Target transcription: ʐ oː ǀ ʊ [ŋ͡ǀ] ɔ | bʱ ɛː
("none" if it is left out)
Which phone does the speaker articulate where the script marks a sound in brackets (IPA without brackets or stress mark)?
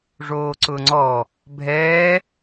ŋ͡ǀ